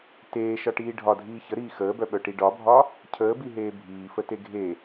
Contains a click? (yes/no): no